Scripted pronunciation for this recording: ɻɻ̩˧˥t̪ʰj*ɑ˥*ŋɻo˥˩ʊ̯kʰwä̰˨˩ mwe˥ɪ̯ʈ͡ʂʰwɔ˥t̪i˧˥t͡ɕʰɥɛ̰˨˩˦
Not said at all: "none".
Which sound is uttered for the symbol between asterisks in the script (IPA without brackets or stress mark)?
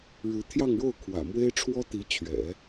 ɑ˥˧